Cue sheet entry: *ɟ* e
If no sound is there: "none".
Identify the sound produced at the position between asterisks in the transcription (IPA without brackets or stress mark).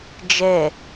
d͡ʒ